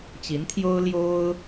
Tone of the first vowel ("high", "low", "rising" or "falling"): rising